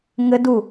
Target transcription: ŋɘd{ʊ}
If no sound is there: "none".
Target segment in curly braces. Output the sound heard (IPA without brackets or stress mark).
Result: u